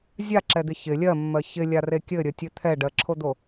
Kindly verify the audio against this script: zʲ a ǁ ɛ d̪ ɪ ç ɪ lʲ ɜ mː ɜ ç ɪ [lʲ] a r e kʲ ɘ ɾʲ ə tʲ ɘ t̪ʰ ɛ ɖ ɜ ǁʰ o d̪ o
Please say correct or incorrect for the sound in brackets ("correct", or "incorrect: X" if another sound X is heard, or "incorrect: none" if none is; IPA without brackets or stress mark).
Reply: correct